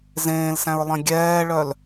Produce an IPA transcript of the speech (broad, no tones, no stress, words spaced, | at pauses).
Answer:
zẽːlsæ̃ɹlˠẽ ɡʲɛːɭœl